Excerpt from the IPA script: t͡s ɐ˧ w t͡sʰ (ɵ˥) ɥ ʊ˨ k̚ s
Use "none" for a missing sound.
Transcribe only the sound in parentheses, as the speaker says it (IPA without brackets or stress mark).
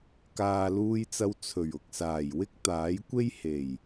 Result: ɵ˨˩